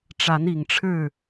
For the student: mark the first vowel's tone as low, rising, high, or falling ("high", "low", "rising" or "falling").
rising